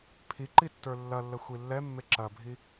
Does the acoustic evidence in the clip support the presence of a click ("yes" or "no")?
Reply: yes